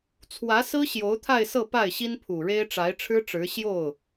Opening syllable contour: rising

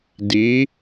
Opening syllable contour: rising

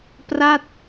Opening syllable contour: falling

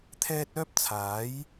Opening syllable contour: high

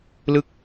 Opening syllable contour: falling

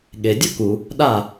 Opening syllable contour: low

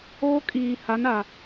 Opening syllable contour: high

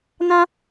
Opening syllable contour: high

